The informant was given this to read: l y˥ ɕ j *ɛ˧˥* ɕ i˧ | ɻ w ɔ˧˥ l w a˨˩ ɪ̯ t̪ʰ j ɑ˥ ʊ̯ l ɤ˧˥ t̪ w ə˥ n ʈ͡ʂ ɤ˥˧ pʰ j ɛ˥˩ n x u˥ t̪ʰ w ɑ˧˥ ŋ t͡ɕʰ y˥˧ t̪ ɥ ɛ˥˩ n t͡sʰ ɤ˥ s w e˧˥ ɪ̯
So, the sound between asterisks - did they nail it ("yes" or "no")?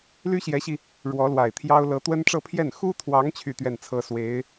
yes